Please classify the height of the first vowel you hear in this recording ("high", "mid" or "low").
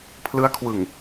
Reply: high